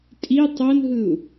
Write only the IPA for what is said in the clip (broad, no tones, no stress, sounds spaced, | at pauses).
tʼ i tˤ o n ɦ ɯ u̯